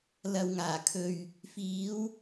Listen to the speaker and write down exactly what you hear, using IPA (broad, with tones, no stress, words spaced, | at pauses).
lɐ˨wŋaː˨˩ kʰɵ˨ɥ | fiː˨˧w